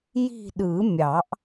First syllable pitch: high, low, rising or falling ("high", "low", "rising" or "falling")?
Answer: falling